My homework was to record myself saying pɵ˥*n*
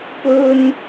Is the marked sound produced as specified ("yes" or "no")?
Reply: yes